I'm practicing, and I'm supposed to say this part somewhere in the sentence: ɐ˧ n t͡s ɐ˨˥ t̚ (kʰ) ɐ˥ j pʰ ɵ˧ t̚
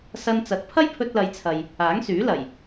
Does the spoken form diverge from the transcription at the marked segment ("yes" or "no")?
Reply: yes